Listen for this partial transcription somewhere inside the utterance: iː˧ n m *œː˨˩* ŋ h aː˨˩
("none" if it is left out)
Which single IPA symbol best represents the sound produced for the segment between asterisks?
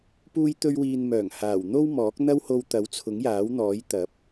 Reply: œː˨˩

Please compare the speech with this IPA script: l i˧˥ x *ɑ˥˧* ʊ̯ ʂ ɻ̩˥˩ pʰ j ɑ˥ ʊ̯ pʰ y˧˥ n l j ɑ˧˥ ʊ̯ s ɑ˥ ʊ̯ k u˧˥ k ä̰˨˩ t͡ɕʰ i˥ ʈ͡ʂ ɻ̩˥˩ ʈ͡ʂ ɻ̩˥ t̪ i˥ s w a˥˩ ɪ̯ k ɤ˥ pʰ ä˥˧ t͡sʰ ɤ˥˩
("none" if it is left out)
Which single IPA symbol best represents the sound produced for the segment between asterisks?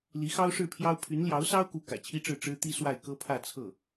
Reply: ɑ˥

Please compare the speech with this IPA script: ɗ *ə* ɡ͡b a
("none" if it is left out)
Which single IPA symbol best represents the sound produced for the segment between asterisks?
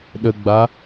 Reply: ə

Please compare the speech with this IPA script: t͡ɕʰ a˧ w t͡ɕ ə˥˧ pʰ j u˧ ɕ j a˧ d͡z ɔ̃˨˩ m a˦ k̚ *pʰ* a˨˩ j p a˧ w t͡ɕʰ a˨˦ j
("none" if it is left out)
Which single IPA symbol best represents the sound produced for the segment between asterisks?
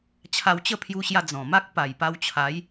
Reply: p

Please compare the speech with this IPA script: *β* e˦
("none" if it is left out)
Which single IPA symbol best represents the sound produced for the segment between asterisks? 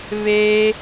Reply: β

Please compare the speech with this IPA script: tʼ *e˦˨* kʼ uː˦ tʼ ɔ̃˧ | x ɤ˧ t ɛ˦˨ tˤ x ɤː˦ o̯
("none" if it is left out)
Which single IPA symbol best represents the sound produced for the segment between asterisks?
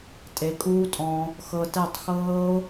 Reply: e˨˦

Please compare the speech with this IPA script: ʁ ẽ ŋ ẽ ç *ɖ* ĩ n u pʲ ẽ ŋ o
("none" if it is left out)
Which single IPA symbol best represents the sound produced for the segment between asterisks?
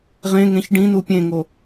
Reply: ɖ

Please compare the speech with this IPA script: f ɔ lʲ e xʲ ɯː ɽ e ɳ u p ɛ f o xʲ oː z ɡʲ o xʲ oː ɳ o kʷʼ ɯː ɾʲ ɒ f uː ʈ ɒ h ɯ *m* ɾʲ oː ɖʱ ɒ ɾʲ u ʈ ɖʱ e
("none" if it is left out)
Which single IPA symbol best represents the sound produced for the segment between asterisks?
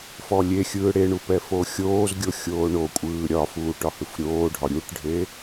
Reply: f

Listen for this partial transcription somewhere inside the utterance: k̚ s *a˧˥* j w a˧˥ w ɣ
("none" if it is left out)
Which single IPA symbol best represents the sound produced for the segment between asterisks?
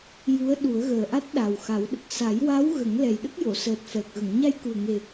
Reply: a˨˩˦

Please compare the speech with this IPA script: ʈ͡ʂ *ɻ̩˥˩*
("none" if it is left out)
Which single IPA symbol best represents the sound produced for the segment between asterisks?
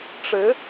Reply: ɻ̩˧˥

